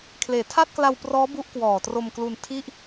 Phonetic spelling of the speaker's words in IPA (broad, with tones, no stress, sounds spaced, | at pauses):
kʰ l eː˩˦ tʰ a˥˩ t̚ k l a˧ w p r ɔː˦˥ b u˥˩ ʔ k w ɔː˨˩ t r o˧ m k l u˧ n tʰ i˥˩ ʔ